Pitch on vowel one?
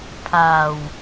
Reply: low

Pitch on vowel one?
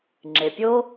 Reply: low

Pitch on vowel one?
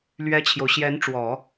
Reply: high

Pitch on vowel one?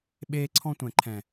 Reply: high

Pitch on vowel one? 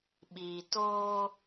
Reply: low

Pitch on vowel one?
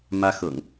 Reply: high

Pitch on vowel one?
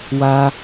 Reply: high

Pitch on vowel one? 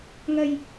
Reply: low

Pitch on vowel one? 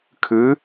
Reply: rising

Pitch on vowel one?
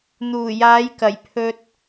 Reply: low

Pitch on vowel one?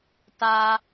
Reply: low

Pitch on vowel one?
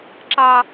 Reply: high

